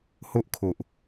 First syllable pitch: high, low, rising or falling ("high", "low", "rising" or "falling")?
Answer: high